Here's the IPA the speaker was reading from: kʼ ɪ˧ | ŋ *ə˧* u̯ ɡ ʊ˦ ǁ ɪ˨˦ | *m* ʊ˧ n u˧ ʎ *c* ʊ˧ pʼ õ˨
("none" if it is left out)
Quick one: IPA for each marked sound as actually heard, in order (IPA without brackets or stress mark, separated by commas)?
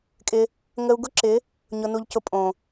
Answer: ə˧, ɲ, c